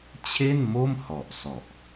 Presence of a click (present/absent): absent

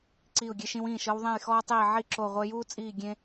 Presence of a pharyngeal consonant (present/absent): present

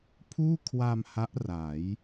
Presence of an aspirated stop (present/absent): present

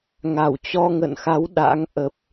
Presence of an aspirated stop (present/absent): absent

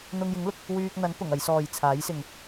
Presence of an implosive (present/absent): absent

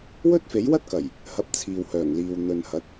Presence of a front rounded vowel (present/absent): present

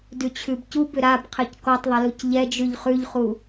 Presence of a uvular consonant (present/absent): present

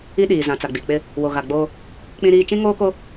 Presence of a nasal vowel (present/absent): present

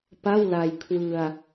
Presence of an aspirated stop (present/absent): present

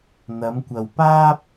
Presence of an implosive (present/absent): absent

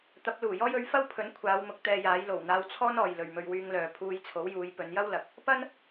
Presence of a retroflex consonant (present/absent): absent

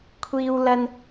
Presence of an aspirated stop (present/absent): present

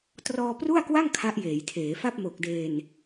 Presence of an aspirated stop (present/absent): present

